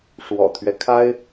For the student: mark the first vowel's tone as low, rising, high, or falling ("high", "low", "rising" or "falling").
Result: low